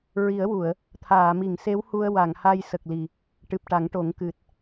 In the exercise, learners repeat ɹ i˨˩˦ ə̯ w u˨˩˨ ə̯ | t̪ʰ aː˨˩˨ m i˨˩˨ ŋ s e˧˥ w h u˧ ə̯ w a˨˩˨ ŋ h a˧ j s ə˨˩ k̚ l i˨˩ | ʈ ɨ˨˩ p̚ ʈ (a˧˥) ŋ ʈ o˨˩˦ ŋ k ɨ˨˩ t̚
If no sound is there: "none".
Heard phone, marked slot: a˨˩˦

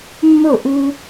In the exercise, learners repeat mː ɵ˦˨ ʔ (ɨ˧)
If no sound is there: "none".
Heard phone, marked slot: ʉ˧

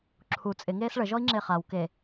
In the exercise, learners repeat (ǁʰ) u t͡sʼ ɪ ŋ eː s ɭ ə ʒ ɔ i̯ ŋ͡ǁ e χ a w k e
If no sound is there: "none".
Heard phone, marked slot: ǁʰ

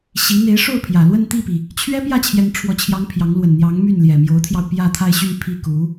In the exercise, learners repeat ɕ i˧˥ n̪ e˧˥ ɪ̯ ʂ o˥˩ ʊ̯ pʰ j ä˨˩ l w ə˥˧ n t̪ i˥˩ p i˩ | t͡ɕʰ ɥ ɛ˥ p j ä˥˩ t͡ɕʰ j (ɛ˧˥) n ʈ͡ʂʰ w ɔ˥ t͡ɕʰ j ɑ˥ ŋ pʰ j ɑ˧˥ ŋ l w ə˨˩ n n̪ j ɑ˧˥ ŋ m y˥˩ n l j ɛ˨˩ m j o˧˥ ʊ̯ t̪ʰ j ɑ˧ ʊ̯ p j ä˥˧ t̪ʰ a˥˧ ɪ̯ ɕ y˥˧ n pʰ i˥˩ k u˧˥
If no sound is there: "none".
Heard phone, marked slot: ɛ˥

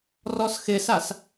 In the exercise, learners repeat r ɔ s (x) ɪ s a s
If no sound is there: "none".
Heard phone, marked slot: x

